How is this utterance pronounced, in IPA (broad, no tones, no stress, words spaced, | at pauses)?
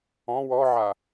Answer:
ɔ̃ wɔʕa